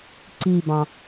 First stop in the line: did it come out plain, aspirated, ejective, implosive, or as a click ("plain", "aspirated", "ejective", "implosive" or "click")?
click